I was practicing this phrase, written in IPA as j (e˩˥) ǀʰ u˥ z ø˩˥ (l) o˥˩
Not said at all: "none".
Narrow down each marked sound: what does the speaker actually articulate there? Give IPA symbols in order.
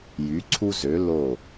y˩˥, l

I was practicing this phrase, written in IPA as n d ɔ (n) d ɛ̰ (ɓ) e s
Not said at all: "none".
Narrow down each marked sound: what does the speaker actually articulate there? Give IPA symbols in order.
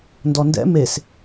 n, m

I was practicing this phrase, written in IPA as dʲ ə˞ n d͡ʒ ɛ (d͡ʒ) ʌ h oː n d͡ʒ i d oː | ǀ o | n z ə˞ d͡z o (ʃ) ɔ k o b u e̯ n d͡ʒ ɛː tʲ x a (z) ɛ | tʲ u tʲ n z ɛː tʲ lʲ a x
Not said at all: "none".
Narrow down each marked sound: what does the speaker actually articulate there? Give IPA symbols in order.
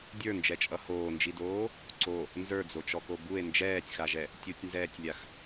t͡ʃʼ, t͡ʃ, ʒ

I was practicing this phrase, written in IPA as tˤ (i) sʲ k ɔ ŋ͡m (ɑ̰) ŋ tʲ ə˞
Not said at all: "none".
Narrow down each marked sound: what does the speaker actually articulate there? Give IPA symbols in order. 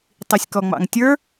i, ɑ̰

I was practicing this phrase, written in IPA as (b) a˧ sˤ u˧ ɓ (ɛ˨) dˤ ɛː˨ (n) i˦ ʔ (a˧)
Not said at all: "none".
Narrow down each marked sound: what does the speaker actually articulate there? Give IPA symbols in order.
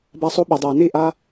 b, ɛ˨, n, a˧

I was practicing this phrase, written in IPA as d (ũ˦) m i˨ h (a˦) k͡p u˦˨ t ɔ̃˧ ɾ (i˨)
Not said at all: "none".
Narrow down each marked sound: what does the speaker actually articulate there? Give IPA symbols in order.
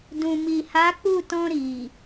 ũ˨, a˨˦, i˨

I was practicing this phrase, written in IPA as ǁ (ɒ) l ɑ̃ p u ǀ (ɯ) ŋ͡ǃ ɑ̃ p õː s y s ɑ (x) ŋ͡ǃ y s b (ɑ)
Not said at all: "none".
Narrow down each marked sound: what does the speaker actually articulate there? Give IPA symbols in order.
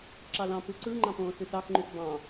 ɑ, ɯ, x, ɑ̃

